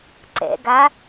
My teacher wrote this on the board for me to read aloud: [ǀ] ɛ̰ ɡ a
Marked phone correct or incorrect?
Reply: correct